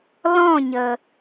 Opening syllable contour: falling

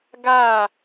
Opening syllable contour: falling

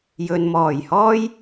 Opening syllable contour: low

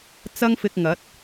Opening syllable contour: high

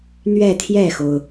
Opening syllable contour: falling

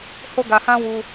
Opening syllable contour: high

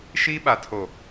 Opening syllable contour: high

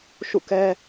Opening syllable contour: falling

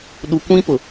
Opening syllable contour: low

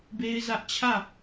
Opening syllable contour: high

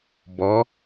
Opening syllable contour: rising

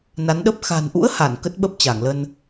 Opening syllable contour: rising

